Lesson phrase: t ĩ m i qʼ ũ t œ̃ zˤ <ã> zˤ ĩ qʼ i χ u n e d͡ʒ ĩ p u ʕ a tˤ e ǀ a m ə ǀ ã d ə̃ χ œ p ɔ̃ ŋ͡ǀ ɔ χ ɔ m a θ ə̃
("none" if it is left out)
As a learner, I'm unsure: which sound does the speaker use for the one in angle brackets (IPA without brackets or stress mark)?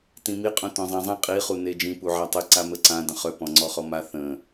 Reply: ã